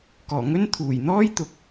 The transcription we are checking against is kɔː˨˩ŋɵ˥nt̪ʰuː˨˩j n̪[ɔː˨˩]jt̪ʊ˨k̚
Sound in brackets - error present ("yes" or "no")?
yes